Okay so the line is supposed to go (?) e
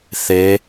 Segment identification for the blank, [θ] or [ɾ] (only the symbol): θ